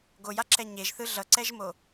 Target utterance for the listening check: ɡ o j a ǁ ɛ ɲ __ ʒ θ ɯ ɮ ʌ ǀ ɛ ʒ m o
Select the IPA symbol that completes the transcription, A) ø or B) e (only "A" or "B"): B